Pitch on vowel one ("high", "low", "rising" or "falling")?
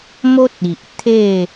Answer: high